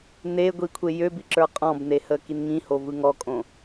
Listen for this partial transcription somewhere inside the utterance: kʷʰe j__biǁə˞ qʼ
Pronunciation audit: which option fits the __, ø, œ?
ø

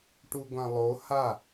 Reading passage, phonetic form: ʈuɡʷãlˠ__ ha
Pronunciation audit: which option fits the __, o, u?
o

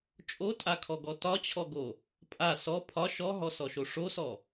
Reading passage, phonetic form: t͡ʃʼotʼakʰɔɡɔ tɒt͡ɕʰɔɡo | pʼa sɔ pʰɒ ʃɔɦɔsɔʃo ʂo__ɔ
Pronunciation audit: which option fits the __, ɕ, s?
s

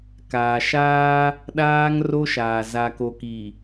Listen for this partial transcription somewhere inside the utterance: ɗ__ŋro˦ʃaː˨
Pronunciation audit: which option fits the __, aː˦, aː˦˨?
aː˦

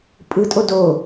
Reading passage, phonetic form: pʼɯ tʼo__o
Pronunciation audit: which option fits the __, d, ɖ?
d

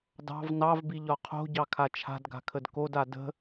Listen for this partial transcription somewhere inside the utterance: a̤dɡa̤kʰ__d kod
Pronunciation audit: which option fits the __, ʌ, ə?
ə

